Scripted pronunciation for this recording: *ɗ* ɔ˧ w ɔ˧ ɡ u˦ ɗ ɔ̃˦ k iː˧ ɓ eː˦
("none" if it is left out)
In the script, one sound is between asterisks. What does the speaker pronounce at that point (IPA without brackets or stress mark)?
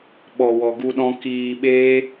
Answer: ɓ